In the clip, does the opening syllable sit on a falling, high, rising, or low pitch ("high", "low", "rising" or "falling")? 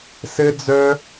high